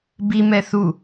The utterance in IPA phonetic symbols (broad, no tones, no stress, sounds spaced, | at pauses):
b i m ɛ θ u